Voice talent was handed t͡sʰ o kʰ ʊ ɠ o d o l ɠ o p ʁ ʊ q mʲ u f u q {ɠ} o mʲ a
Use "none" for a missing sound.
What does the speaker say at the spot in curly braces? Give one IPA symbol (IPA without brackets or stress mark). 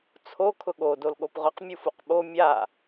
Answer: ɓ